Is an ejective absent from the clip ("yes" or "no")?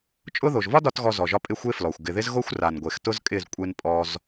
no